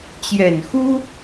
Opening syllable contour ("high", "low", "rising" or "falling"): low